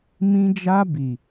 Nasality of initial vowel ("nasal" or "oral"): nasal